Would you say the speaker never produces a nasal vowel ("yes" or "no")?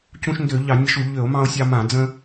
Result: no